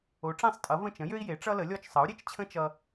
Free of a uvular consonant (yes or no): yes